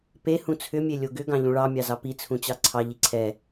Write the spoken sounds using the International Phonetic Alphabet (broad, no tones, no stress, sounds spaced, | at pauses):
p e h ũ t͡sʰ ʏ mʲ e lʲ o ɡ ʏ ɡ ɑ̃ ʎ ũ ɭ ɑ mʲ ɑ z ɑ p i t͡sʰ ũ t͡ɕ ɑ ǀʰ ɑ ʎ i ǀʰ ɛ